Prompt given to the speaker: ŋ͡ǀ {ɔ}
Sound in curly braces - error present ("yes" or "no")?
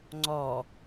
no